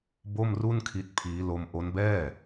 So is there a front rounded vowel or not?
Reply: no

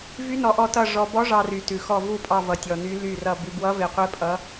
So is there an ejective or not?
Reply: yes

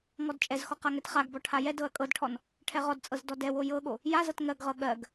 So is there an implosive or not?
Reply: yes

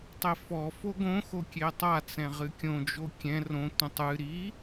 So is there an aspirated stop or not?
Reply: no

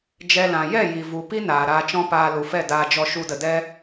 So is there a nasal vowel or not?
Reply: yes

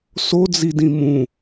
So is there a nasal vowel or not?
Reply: yes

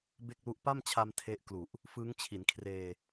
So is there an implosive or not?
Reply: no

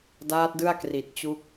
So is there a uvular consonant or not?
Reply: no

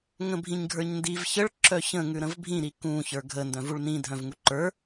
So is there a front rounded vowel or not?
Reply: yes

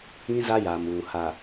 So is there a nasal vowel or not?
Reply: yes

